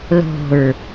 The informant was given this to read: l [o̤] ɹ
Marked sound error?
no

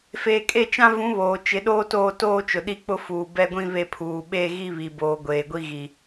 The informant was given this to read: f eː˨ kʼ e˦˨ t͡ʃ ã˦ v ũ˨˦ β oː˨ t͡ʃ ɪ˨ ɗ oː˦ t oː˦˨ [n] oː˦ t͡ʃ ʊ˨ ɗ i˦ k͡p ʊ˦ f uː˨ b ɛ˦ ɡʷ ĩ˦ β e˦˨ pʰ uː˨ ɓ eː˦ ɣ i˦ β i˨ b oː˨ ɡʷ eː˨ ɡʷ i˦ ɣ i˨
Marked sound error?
yes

